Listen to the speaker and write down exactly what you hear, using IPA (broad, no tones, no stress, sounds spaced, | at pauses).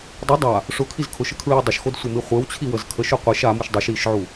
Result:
dˤ ə dˤ a | ʂ ʊ kʰ i z kʰ ʊ ʃ ə kʰ ɹ i w dˤ ʊ ʃ x o d sʷ e m i χʷ e w t͡ɕʰ i w ə z kʰ ə ʃ ʊ qʷ i ʃ a m u ʃ dˤ u ʃ i ʃ ʕ u